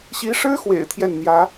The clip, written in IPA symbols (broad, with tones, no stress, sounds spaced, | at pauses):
ɕ i˧˥ ʂ ɻ̩˥ x w ḛ˨˩ ɪ̯ t̪ʰ j ɛ˥˩ n n̪ j ä˧˥